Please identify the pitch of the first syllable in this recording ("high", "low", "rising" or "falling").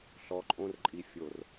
low